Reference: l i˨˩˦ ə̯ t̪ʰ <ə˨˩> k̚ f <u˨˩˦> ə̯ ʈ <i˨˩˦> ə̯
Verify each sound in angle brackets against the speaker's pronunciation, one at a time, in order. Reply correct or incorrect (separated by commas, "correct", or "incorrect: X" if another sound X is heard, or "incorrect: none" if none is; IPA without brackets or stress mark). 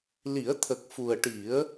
correct, incorrect: u˨˩, correct